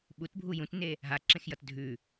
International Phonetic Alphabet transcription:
ɓ u t bʱ u j ũ t n e | ɦ a ǁ ẽ x j ʌ t dʱ ʉ

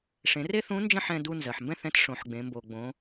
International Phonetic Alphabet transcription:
ʂ ẽ˩˧ r e˥ θ ũ˧˥ n d͡ʒ ə̃˥ ħ ɛ̃˧ d u˧ n z ɜ˩ ħ m b ɛ̃˥ θ ɛ̃˧˥ t ʂ õ˩˧ ħ ɡ͡b ẽ˩˧ m b o˩ ɡ͡b õ˩˧

